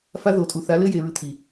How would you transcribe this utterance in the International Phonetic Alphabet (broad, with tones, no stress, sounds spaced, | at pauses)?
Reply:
f a˧ ð o˨ tʼ u˨ θ a˨˦ l ɘ˦ j e˨ ɹ ɨ˧ t̪ʰ i˨